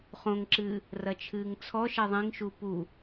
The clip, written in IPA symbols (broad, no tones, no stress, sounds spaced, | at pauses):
χ õ ŋ ǁ ɨː | r ɐ t͡ʃʰ ɨː ŋ t͡sʰ ɔ ʃ ɛ ðˤ ĩ ŋ ʃ u p u